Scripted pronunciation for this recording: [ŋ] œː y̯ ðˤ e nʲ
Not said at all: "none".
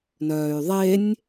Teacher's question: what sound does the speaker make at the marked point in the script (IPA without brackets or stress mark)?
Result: n